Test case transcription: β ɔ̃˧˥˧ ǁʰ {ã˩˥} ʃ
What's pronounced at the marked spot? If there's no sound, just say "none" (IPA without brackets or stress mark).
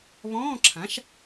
ã˩˥